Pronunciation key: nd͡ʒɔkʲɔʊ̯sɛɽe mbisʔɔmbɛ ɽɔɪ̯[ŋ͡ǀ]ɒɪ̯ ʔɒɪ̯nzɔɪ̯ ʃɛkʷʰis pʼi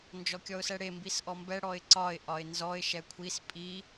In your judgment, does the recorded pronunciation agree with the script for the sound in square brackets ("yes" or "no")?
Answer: no